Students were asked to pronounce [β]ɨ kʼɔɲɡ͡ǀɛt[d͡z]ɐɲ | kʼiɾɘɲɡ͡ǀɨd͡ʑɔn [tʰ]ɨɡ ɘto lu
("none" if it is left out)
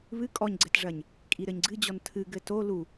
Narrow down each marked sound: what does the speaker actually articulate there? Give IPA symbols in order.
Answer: β, ʐ, tʰ

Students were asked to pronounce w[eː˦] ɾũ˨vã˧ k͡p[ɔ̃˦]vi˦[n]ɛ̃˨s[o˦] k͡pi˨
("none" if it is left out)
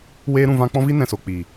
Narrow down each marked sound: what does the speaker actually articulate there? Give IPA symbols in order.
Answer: eː˧, ɔ̃˦, n, o˨

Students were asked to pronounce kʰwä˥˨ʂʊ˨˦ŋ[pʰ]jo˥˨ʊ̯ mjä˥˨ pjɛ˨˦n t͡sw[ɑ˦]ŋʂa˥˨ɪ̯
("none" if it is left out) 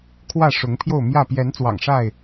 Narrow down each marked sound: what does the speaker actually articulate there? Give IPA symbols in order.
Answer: pʰ, ɑ̰˨˩

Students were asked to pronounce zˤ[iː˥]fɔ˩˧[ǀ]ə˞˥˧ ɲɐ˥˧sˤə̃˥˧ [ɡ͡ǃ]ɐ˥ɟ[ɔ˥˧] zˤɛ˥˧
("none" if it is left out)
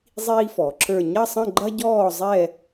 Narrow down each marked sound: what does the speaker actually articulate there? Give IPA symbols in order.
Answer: iː˥, ǁ, ɡ͡ǃ, ɔː˥˧

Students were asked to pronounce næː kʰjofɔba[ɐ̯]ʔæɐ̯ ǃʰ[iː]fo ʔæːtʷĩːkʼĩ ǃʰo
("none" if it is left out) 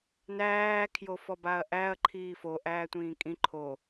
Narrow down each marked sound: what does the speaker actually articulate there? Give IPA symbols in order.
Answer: ɐ̯, iː

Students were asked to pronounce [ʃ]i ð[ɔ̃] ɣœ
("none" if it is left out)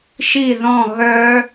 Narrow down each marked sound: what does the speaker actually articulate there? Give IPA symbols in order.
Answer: ʃ, ɔ̃

